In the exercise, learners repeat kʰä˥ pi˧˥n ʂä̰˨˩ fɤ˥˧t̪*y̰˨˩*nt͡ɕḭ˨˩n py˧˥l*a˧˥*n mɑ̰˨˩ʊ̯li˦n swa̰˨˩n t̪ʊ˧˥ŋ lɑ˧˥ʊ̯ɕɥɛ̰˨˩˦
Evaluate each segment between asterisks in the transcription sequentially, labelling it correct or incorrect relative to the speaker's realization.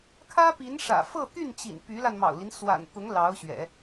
incorrect, incorrect

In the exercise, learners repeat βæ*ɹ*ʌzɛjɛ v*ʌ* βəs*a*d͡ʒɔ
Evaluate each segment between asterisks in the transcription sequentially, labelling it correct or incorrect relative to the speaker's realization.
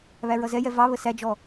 correct, incorrect, incorrect

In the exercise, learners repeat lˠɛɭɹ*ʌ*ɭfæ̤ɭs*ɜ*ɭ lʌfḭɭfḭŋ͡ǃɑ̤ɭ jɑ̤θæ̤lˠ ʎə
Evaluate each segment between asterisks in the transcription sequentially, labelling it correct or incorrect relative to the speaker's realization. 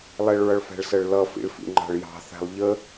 correct, correct

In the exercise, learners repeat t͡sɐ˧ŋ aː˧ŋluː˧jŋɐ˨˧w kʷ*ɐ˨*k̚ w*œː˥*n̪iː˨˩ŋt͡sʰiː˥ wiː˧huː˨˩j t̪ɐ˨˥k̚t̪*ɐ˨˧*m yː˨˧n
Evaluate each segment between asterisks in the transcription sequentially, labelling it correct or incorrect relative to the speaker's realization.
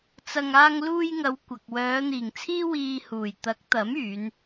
correct, incorrect, incorrect

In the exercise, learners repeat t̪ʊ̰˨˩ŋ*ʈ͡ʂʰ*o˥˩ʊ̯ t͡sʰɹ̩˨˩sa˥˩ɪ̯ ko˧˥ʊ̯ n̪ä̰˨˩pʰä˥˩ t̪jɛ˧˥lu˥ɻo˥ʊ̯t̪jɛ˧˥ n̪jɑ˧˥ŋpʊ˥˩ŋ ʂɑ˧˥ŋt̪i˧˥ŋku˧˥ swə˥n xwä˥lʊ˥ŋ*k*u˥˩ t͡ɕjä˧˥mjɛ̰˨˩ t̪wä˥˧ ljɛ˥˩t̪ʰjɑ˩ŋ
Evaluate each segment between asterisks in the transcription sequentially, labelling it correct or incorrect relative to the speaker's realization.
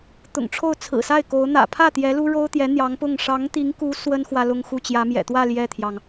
correct, incorrect

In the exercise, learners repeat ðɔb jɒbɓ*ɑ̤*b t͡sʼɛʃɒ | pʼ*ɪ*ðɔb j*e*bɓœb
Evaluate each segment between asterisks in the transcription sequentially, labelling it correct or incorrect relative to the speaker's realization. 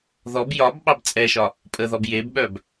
incorrect, incorrect, correct

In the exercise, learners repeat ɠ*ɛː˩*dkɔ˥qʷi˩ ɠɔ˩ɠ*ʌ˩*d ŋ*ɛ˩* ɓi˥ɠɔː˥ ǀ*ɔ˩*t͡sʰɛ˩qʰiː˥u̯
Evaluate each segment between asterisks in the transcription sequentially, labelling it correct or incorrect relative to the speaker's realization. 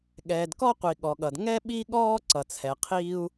correct, correct, incorrect, incorrect

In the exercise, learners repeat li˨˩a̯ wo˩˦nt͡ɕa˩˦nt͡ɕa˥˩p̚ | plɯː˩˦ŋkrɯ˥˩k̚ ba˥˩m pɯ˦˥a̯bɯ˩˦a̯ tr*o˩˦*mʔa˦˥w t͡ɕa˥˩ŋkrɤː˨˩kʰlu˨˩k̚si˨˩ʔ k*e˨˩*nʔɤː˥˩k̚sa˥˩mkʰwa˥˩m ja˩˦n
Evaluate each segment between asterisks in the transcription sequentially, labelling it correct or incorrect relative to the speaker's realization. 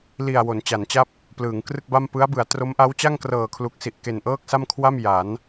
incorrect, correct

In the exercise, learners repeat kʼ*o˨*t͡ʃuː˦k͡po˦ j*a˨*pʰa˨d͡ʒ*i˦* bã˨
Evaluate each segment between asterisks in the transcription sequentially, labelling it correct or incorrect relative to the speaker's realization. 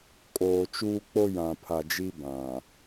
incorrect, incorrect, correct

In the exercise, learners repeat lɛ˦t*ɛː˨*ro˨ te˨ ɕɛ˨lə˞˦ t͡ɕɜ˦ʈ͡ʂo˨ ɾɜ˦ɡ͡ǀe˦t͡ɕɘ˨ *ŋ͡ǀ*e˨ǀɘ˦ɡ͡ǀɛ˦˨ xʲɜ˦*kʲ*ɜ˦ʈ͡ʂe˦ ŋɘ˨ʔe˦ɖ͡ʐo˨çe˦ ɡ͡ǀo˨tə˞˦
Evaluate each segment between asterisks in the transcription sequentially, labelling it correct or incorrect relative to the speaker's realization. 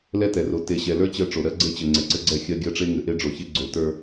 incorrect, correct, incorrect

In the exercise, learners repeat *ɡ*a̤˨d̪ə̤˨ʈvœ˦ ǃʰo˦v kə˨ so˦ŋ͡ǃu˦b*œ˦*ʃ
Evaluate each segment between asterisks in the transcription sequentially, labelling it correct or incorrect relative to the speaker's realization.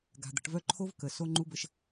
correct, incorrect

